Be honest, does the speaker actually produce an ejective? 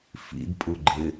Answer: yes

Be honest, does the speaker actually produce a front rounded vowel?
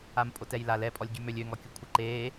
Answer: yes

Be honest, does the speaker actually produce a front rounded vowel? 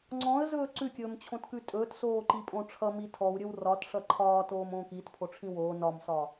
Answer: no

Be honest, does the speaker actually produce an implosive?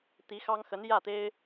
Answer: no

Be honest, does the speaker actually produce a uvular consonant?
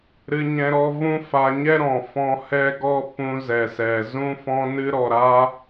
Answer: no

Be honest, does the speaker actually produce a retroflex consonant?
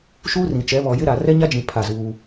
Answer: no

